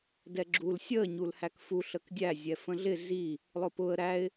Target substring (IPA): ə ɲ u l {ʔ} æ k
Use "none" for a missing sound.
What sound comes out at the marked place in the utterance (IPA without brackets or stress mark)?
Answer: h